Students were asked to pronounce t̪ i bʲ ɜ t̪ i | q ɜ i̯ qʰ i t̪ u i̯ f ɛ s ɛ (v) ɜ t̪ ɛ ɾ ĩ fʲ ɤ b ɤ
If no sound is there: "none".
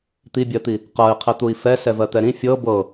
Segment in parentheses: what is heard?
v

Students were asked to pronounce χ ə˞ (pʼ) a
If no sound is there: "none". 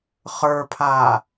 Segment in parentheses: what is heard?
pʰ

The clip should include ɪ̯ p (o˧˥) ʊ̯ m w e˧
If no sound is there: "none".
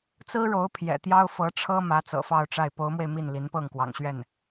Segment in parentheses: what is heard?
o˧˥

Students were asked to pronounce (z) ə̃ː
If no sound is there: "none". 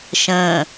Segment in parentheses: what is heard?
ʃ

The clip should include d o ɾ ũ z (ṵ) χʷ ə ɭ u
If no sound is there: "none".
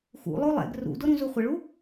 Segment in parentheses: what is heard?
u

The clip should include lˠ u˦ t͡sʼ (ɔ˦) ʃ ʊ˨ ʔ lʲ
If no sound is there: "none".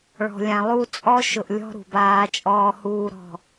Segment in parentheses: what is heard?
ɔ˦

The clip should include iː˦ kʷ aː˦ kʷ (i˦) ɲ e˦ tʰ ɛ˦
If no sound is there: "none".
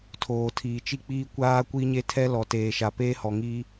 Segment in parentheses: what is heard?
i˦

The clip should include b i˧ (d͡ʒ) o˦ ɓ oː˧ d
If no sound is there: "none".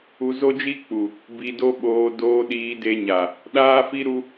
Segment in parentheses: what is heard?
d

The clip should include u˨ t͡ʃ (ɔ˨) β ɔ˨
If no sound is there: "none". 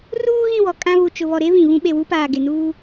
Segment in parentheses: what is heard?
ʊ˨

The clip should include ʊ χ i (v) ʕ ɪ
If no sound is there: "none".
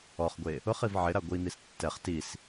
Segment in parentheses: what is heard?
v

